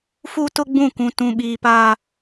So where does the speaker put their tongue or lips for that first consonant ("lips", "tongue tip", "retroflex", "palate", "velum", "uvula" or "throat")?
lips